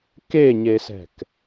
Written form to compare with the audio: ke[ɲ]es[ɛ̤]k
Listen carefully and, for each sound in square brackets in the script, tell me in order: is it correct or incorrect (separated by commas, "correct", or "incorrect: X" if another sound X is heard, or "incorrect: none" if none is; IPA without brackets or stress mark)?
correct, correct